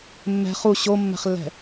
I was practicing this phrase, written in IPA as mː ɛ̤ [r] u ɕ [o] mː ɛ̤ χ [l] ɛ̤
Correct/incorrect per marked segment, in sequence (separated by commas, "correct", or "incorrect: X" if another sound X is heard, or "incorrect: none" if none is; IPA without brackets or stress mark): incorrect: χ, correct, incorrect: lː